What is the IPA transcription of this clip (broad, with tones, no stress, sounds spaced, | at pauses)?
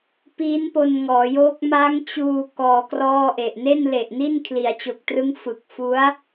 p iː˦˥ n p o˧ n ŋ ɔː˩˦ j oː˦˥ k̚ m a˦˥ ŋ t͡ɕ uː˧ k ɔː˧ k r ɔː˥˩ ʔ e˨˩ ʔ n e˥˩ n l e˨˩ ʔ n i˥˩ n kʰ l i˩˦ a̯ t͡ɕ o˨˩ k̚ t r ɯ˦˥ ŋ f ɯ˨˩ k̚ f u˦˥ a̯